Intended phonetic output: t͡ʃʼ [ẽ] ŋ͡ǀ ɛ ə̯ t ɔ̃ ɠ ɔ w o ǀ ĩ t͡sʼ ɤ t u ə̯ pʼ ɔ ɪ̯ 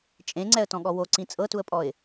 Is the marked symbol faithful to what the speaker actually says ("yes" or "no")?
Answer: yes